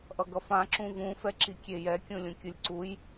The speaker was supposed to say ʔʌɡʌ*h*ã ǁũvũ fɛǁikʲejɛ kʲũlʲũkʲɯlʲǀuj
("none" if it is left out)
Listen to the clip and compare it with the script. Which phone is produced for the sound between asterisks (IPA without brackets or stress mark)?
f